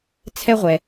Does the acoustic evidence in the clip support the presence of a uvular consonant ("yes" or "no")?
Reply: yes